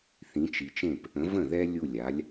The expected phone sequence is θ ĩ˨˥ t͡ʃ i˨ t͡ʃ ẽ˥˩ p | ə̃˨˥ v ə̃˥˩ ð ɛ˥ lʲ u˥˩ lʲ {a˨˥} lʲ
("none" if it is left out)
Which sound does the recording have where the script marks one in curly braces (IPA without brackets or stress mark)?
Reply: a˨˥